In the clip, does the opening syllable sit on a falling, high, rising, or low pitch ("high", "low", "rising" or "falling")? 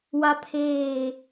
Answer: high